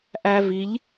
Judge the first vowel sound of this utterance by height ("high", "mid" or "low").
low